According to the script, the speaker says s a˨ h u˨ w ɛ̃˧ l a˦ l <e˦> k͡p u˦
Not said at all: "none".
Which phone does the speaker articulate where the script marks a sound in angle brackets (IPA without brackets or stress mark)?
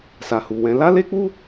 e˦